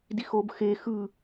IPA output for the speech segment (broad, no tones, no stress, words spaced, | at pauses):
dixob xe xɯ